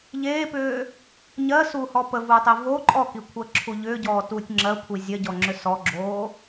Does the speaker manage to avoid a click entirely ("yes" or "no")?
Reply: no